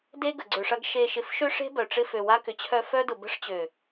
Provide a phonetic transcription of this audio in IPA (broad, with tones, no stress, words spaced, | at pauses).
de˦ɡə˨ɡ͡ǀø˨ʂɐ˦ɡ ʃe˨ʃɪ˨fʃʏ˦ʂe̤˦ bœ˨ʈ͡ʂɪ˦fø˨ wa˦kʏ˨t͡ɕʰœ˦ fœ˦dʊ˨bə̤˦ʂ t͡ɕø˨